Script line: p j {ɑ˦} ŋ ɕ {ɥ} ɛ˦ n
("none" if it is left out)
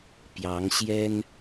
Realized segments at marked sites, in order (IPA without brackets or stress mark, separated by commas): ɑ˨˦, j